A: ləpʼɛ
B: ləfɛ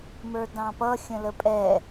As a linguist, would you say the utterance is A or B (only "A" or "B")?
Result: A